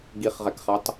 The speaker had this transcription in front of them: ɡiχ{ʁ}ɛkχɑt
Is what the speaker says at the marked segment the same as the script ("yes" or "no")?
yes